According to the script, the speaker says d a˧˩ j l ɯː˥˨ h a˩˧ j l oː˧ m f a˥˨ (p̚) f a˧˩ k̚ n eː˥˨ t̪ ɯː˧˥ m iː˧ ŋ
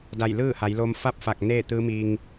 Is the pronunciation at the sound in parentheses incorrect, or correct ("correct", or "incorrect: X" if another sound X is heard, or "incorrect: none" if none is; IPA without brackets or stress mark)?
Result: correct